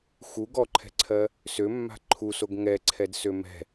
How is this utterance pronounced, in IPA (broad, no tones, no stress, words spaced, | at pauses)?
xu ɡɔǃʰɛ̤ǀʰɜ | sømːa̤ ǃʰusoɡ ŋɛǀʰɛdsø mɛ̤